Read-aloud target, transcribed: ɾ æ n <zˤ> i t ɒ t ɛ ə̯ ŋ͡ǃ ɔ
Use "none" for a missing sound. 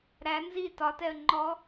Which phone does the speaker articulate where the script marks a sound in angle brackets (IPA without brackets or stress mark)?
z